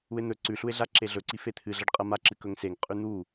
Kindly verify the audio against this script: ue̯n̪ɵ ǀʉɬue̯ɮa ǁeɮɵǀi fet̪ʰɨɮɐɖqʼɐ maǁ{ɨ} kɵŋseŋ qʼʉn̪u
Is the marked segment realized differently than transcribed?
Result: no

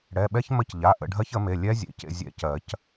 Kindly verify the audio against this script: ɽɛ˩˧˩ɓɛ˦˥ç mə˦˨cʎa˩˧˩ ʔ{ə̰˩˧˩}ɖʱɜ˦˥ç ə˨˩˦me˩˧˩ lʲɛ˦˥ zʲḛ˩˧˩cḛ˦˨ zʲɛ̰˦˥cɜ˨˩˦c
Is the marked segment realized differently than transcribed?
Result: yes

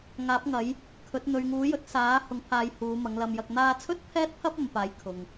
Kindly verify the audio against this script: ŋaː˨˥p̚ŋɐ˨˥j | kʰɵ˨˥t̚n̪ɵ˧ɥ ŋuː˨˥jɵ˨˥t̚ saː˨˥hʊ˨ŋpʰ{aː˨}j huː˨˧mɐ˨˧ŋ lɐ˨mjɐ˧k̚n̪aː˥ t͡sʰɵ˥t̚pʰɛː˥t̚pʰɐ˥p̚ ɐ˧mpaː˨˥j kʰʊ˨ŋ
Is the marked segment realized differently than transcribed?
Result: no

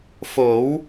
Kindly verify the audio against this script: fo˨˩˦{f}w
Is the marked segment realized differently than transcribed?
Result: yes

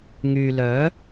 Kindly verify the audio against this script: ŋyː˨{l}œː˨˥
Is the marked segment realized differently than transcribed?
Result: no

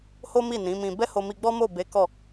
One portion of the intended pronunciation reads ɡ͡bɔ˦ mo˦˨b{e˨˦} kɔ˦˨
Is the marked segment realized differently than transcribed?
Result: no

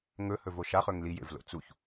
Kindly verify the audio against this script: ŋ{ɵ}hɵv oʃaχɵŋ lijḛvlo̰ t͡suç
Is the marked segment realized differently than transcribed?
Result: no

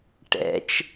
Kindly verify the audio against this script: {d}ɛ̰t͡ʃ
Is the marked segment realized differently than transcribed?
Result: yes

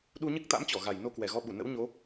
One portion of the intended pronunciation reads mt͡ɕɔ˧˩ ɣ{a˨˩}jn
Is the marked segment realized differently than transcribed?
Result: no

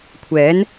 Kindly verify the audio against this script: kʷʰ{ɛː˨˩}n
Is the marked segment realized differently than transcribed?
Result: yes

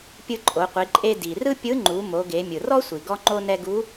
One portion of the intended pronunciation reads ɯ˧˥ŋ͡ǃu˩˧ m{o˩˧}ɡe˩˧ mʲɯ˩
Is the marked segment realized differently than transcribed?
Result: no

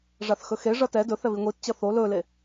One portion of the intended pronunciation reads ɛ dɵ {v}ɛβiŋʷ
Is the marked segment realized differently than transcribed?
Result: yes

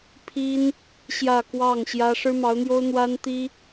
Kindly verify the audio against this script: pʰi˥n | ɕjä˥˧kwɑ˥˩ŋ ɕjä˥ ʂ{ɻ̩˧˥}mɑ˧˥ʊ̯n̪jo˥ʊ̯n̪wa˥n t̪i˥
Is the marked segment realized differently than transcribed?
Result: yes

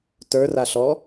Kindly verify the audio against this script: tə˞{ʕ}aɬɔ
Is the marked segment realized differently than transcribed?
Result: yes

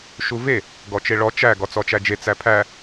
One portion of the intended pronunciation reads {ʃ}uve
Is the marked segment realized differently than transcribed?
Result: no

